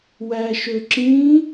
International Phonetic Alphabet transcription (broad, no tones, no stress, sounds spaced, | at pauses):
w æː ʃ ø ǁ ĩː